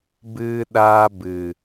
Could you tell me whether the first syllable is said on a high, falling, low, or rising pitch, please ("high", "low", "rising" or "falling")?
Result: high